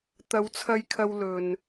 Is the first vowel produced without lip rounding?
yes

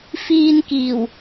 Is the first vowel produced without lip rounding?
yes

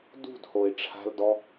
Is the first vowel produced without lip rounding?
no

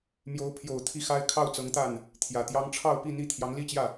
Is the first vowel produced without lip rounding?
no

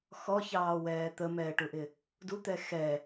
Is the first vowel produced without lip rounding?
no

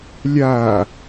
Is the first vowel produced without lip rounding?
yes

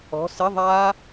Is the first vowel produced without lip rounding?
no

